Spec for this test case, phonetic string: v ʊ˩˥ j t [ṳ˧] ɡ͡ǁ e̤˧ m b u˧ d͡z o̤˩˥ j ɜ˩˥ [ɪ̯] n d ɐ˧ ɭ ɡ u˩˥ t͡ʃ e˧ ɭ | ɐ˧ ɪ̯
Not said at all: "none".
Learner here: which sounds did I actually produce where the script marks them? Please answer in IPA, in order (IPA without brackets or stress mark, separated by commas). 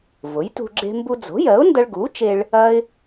ṳ˧, ʊ̯